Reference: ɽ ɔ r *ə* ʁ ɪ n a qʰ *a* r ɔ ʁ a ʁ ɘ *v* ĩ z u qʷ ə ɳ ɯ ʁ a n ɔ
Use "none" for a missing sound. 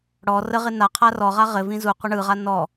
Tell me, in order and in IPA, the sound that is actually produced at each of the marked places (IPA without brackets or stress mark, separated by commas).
ə, a, v